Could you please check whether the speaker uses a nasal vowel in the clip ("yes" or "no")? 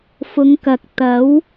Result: no